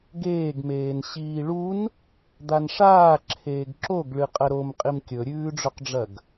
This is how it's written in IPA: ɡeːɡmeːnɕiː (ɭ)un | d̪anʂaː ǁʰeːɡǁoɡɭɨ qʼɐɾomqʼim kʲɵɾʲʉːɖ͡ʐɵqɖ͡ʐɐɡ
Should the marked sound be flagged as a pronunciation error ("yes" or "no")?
no